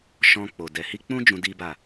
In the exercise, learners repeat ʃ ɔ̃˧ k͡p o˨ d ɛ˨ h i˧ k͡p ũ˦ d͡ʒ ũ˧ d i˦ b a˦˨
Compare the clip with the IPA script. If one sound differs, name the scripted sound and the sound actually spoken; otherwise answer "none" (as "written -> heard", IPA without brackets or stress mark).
none